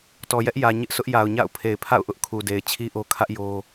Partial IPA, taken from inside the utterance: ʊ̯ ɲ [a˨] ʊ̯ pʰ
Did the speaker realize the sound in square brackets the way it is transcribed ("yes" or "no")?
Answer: no